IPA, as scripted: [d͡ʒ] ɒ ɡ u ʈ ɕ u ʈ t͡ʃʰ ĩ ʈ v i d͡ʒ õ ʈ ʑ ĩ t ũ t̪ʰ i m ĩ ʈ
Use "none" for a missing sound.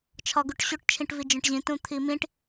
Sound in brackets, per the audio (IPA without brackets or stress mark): t͡ʃʰ